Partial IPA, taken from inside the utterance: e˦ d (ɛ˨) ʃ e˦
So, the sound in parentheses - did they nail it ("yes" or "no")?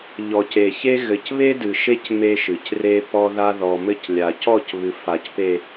no